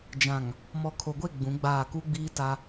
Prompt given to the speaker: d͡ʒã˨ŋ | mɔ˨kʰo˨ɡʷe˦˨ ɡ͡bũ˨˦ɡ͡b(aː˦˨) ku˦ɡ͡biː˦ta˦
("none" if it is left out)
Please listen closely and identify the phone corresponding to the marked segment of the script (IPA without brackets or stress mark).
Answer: aː˦˨